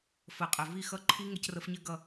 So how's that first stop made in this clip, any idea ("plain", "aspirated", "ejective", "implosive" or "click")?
ejective